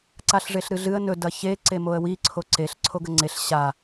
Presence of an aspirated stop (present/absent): present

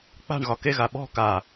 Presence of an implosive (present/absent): present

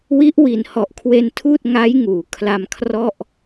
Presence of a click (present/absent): absent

